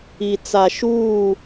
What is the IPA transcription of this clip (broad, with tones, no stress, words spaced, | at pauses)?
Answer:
i˨t͡sa˨ ʃuː˦˨